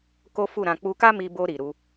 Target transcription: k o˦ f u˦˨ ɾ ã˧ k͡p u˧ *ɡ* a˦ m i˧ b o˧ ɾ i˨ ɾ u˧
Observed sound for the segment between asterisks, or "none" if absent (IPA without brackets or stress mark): k